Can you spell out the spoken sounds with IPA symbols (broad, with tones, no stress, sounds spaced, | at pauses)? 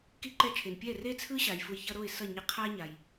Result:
k i˥˩ ǃ ɛ˥˩ t͡ʃʰ e˩ n pʲ ɛ˥˩ r e˥ t͡sʰ ɯ˥ ɕ a˩ j f u˧ j ç ʌ˥ ɾ o˥˩ ɪ̯ s ʌ˥˩ ɲ e˧ qʰ a˥ ɲ a˩ j